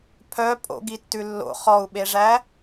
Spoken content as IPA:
pʰ œ pʼ o̰ ɡ i tː ʉ lː o̰ χ ɔ u̯ ɓ e ʐ æ

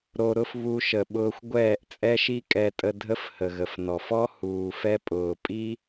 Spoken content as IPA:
ɾ o˨ ɾ ʊ˧ f β u˧ ʃ ə˨ ɓ ʊː˧ xʷ ɡʷ ɛː˦˨ ʔ t͡sʼ ɛ˦ ʃ i˦ kʼ ɛ˦ tʼ ə˦ dʱ ə˦ f h ə˨ ɣ ə˨ f n ɔ˨ f ɔ˦ h uː˧ f ɛ˦ pʼ ʊː˨ pʼ i˦

